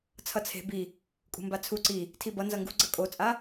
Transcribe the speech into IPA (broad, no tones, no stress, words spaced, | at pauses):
t͡sʰʌt͡sʰe̤ bi | kʼṳmbat͡sʰu ǀi | tʰibʌ nzʌŋɡṳɡ͡ǀʌ kʼot͡sʼa